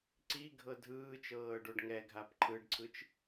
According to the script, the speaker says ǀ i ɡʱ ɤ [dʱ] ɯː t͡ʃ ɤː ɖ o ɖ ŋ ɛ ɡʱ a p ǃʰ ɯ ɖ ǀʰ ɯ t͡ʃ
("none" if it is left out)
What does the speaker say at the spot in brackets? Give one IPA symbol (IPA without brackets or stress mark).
dʱ